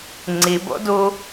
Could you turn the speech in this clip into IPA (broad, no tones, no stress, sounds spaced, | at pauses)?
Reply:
ŋ͡ǀ i b o̰ d u